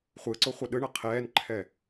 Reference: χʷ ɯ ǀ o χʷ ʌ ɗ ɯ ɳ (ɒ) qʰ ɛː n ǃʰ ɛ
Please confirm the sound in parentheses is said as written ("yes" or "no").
no